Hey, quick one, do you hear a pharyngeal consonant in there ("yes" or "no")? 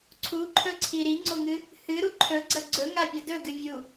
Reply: no